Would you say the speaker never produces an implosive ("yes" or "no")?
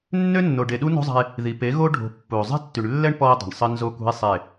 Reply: no